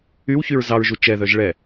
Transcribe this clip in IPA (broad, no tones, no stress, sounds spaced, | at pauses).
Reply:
y w ç y ɹ z ɑ ɹ ʒ u t͡ʃ ɛ ð œ ʒ ɭ ɛ